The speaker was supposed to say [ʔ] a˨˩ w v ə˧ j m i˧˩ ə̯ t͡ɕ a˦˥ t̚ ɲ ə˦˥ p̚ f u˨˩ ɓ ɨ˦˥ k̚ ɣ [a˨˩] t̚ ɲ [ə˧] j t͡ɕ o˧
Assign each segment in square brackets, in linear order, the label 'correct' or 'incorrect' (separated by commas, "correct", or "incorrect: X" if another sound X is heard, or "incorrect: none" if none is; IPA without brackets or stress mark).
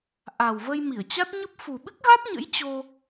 correct, incorrect: a˦˥, incorrect: ə̰˧˥